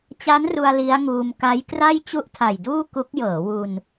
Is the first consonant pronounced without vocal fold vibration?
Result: yes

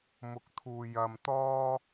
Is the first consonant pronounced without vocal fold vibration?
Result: no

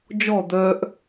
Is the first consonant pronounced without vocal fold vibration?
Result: no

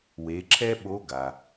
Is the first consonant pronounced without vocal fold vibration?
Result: no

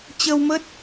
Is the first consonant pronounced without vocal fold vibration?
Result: yes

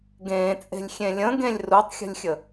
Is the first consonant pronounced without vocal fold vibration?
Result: no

